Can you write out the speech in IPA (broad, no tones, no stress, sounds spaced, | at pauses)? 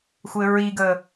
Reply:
xʷ ɘ ɹ i ɡ ə